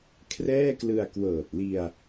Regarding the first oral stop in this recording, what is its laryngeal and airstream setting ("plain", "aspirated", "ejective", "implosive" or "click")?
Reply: aspirated